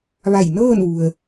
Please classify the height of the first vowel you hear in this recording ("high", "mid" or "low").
low